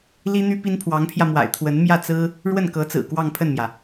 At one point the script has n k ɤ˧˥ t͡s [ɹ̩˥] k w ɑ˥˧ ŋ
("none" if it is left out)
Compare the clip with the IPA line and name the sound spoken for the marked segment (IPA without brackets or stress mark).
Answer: ɹ̩˨˩